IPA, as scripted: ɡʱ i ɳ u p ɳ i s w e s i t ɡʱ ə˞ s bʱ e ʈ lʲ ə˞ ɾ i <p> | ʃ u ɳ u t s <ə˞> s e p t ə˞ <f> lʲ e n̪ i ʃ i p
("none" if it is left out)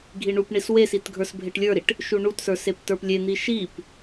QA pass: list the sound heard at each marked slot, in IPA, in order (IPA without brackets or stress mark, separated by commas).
ʈ, ə˞, p